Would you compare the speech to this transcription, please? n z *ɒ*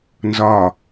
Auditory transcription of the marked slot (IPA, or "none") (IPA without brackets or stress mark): ɒ